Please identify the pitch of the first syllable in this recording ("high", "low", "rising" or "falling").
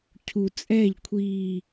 low